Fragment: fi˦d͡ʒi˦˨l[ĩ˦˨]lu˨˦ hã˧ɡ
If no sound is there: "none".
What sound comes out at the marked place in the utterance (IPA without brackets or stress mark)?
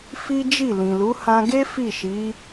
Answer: ĩ˨